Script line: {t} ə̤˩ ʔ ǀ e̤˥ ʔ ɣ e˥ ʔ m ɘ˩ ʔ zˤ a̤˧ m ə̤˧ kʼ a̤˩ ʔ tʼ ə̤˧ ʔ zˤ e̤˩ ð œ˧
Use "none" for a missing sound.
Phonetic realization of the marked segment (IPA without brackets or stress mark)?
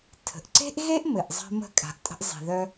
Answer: tʰ